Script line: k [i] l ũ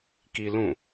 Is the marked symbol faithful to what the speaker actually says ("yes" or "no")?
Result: yes